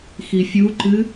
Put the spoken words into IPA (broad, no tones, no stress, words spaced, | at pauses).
xifʲuǃɨ